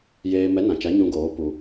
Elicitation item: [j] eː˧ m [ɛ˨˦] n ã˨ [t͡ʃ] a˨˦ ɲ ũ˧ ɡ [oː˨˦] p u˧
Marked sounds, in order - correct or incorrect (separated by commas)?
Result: correct, correct, correct, correct